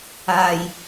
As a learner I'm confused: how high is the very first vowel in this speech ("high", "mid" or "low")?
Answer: low